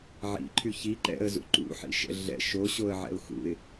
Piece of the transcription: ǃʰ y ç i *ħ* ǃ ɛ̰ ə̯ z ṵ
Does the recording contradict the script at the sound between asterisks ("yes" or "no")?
yes